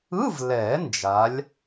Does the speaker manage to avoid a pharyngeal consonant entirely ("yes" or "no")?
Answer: yes